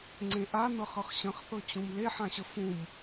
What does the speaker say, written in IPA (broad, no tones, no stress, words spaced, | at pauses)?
ŋ͡ǀẽʔanɤχɤχ ɕə̃χθɤt͡ɕũm leħãɕə fũm